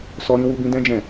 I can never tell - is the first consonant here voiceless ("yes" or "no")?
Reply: yes